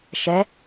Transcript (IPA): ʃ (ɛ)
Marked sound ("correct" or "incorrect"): correct